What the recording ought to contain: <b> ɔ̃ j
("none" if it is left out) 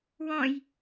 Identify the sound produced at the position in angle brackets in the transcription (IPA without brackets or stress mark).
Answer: w